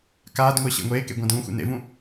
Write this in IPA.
kaːdŋʷɪː ɕḛŋʷeːkḛ ɡʷãdũːxʷḛ nḛvũ

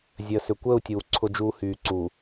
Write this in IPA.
zʲəː˨sʏ˨ kʷəː˦˨u̯tʲuː˨ ǀʰʊ˦d͡ʒuː˦ hyː˨ ǀu˨

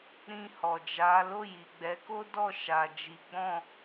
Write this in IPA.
ɾĩ˧hɔ˨d͡ʒa˨˦ lo˦˨ji˨ɡ͡bɛ˨˦ko˦ dɔ˦˨ʃa˨d͡ʒi˨˦ɡ͡bɔ̃˦˨

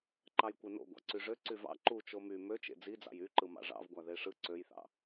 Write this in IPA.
ǃɑjkʷeno̰ ɡʷɑ̰ǀyʐø ǀyvɑ̰ ǃut͡ʃo my møt͡ʃḛ d͡zid͡zɑ̰j yǃɯ mɑ̰ʐɑ̰vɡʷæ ðeʂɯ ǀøjθɑ̰

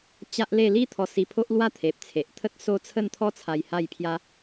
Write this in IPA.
t͡ɕa˦ʔle˥˧ li˦ t̪ʰɔ˧si˧pʰo˦ʔ lwa˥˧t̪ʰe˨p̚t͡sʰe˨ʔ t̪ʰə˦t̚so˦t͡sʰə˥˧nt̪ʰɔ˦ t͡sʰa˧jha˥˧jpʰja˦

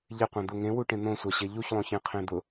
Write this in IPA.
ʎɪ qʷãd̪ʊ ŋẽwuʈẽ n̪õsʷaɕe ʎuçlˠõçẽ qʰẽd̪ʊ

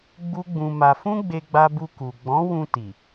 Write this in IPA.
ɡ͡bu˦ɡ͡bũ˧ma˧ fũ˦ɡ͡be˧ɡ͡ba˧bu˧ ku˨ ɡ͡bɔ̃˨˦wũ˧ ti˨

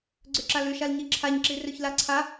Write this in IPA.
ɡ͡ǀøǁalʉ ʃalɲiǁʰaɲ ǁirøçlaǀʰa

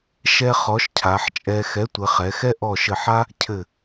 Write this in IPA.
ʃɛ˥χɔ˨˥ʃ cʰa˩˧ħt͡ʃʼɛ˧ xɛ˨˥tʷɘ˩˧χɛ˩˧xɛ˥ ʔɔ˧˩ʃɘ˧˩ħa˥ | cʰɘ˧˩

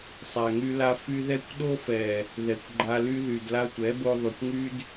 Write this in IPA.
sˤa˨ŋy˧la˧ fy˧ðɛ˦kʷɗo˦fɛ˨ | ðɛ˨kʷɡ͡ǃa˧ly˦ ðy˨dla˧tʷɛ˨˦ bo˧ðˤy˨kʷŋy˦d

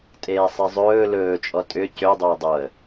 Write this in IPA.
tʼeːsˤizˤɵː lɵːt͡ʃʼɔ tʼʏ cʏdˤøʊ̯ dˤoə̯

